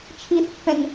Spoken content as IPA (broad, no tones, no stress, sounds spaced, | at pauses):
t͡ʃʰ i θ pː ɛ̃ ŋ